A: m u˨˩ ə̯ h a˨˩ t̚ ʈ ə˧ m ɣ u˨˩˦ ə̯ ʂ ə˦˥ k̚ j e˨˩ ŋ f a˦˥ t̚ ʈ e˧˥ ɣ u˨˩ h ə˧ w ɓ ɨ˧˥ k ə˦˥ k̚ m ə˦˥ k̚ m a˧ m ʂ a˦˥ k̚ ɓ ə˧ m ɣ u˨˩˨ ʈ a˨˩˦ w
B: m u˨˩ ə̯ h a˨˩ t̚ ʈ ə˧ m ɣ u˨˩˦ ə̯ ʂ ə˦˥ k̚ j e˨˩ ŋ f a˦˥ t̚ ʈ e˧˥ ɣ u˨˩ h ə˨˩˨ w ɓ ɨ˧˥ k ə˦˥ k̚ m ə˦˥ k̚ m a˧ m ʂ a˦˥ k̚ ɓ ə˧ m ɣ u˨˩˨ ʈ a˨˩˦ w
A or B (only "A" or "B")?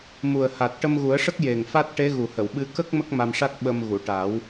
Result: B